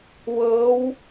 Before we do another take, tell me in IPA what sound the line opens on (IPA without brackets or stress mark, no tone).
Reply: w